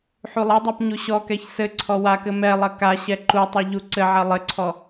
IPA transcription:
ħ u lˠ ɐ dˤ a p ɲ u ɕ ɔ k ɛ ç s ɘ ǀʰ ɔ w a k ɘ m ɛ lˠ ɐ k a ɕ ɛ ǃ u tˤ ɐ ʎ u ǀ ɘ ʕ ɐ lˠ ɘ ǀʰ ɔ

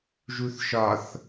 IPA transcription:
ʒ u θ ʃ ɒ θ

